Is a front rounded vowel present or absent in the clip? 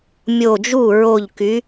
present